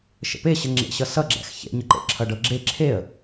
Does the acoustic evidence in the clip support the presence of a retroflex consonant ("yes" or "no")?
yes